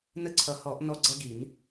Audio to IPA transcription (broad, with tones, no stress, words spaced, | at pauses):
nə˦˨ǀʰʌ˨˩˦hɔ˨˩˦ʔ nɔ˦ɡ͡ǀʌ˦ɡi˨˩˦n